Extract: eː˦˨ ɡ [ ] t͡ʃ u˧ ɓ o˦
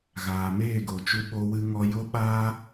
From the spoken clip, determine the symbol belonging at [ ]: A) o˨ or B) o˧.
A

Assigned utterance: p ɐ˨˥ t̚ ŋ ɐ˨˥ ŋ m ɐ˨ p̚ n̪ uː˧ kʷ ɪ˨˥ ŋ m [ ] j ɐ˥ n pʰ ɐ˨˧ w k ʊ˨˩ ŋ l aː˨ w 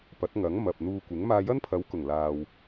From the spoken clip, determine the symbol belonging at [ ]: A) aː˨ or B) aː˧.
B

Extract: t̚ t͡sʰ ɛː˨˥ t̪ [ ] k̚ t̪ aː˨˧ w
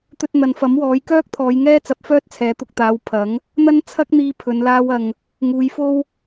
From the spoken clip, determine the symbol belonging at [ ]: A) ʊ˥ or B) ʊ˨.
B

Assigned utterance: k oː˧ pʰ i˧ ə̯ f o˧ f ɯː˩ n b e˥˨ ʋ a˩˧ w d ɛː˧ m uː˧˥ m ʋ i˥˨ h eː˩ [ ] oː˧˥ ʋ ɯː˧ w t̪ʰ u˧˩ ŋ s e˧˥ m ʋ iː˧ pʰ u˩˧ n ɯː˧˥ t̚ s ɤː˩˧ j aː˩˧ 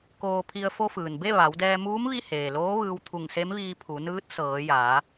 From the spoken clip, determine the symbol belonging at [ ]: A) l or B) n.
A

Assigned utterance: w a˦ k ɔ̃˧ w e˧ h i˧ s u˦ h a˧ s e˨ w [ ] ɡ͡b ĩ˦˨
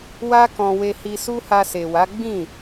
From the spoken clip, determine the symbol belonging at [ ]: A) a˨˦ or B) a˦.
A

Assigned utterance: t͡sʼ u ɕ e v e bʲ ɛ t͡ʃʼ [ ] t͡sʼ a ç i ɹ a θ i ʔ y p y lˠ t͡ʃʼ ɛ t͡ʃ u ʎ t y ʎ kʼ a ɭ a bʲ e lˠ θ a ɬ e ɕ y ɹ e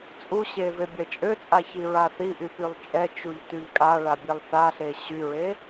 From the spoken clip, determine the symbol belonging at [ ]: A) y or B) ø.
B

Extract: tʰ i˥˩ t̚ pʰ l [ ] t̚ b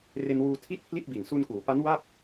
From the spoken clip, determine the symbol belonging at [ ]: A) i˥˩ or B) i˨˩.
A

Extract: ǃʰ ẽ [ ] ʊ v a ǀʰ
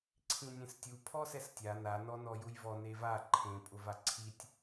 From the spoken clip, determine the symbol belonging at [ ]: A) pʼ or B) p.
A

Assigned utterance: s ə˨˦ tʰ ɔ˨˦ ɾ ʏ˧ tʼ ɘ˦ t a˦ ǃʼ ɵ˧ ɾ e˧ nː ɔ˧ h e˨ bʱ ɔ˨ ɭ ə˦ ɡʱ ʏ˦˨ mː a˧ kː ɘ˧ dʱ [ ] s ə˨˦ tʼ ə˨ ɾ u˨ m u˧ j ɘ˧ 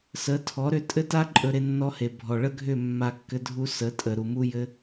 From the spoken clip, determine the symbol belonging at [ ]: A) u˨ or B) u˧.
B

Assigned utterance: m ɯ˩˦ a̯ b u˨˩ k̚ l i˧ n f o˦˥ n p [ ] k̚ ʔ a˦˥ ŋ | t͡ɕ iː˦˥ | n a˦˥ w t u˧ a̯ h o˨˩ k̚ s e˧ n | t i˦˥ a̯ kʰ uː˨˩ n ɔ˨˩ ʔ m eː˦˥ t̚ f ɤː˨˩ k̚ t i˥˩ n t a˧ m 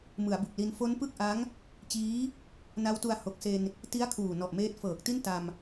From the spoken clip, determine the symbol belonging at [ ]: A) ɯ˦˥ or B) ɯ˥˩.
B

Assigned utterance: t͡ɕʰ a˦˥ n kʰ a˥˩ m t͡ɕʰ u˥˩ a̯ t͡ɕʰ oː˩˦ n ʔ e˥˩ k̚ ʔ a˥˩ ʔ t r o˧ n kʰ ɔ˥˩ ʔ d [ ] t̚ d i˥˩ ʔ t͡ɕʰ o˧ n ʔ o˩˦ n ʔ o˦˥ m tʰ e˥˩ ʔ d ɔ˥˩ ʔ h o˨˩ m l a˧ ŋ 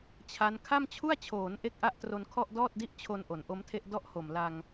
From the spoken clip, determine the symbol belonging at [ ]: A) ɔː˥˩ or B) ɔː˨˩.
A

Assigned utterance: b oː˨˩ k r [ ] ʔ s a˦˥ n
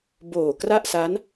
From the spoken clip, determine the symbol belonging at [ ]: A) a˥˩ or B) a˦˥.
A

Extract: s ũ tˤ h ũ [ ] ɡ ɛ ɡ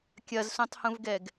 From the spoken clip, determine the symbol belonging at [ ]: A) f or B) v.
B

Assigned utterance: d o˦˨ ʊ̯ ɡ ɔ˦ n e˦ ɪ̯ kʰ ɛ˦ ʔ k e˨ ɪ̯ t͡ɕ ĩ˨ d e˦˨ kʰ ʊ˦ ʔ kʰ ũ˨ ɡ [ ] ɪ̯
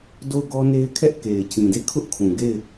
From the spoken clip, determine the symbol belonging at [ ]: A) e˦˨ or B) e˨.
A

